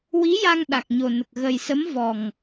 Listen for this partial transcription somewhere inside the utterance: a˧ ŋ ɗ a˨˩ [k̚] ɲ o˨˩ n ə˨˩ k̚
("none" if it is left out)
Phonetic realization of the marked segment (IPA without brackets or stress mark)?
k̚